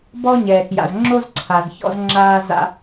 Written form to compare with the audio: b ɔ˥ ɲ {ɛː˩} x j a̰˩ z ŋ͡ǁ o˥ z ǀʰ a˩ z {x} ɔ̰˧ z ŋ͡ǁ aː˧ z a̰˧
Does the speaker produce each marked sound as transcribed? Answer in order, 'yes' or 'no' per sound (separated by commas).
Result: yes, no